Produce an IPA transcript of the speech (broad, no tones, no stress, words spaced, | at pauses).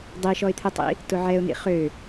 dˤiʃɔɪ̯t̪ʰɯtˤḭ | tʊʕɛʊ̯n̪ḭ χø